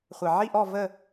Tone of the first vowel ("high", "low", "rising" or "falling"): low